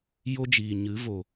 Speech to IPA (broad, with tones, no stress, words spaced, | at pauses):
jo˦d͡ʒiː˨ɲɨ˨˦vo˨